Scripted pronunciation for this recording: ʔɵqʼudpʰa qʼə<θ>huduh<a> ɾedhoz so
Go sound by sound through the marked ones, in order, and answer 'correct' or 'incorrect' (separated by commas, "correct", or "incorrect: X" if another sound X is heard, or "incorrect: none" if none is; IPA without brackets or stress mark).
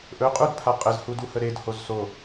incorrect: z, incorrect: ə